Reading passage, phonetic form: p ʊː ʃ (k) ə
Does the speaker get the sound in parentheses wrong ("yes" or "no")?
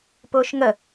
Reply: yes